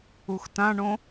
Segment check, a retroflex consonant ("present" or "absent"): present